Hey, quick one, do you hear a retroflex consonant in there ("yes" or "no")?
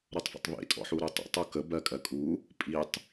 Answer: no